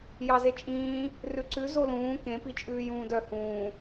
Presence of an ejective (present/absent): present